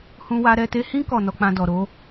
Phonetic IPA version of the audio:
hũ˦wa˦ ɾɛ˧te˧hĩ˦ kɔ˦˨nɔ˧k͡pã˧ dɔ˨ɾo˨˦

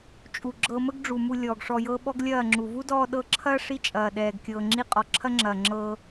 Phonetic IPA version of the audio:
t͡ʃʼu˨ɡ͡ǁɤ˧mə˦ɡ ɖ͡ʐu˨mu˧ lʲɔː˨ɡʂɔ˧jɤ˦ ɓɔ˦ɡlʲɐː˦˨ŋ͡ǁu˨ vu˦dɔː˧ɗɤ˧ǁʰɐː˦ ʂi˦t͡ʃʼɐː˨ ɗɛː˨ɡ kʲɤː˨ŋ͡ǁi˧ qʼɔ˨ǁʰɐ˦ ŋ͡ǁɐː˨ ŋ͡ǁɤ˧

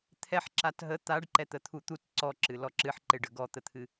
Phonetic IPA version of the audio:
t̪ʰɛħǁat ɦə t̪aɖ ǃɛt̪ət̪ʰut̪ut ǀɔǁɨ lɔǁɨħǃeɖ əɡɔt̪ət̪ʰɨ

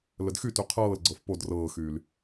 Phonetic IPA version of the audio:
lədxyty qʰɤːlɡ͡ǀɤf pod rɤːxyːl

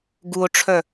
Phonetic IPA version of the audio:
ɡuo̯ʈ͡ʂʰœ

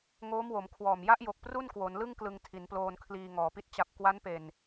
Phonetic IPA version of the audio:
ŋoː˦˥mwo˩˦mkʰwɔː˨˩m ja˦˥ʔjo˨˩k̚ pru˥˩nkwo˩˦nlɯ˥˩ŋ klɯ˧ŋtʰi˩˦nploː˧n kʰliː˧ŋɔː˨˩pi˥˩t̚ t͡ɕa˨˩p̚ kwa˦˥npe˨˩n

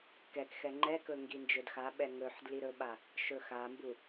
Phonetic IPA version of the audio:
kɛkxɛ ŋ͡ǃɛkɵ ŋɡind͡ʒɵdxaɓɛ ŋɵħ dliɾɵɓa | ʃɵxambu

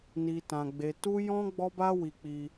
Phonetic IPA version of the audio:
ni˧ tã˧ɡ͡be˧ tu˦jɔ̃˦ ɡ͡bɔ˦ba˦wi˧k͡pi˧

